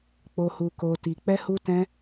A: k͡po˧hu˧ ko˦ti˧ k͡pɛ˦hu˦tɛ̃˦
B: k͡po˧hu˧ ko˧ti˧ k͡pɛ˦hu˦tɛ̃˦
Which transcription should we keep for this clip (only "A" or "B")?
B